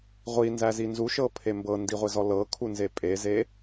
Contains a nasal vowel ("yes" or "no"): no